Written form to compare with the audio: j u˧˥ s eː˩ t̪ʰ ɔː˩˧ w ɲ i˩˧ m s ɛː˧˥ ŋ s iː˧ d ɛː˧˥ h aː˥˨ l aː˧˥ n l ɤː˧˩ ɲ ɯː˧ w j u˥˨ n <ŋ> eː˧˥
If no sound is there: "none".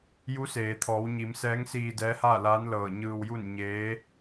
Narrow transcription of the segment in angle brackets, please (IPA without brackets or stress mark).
ɲ